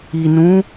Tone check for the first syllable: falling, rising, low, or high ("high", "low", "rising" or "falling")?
low